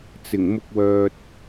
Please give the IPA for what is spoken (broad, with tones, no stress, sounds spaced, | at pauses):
t͡s ɪ˨˩ ŋ m ʊ˧ k̚ w œː˨ t̚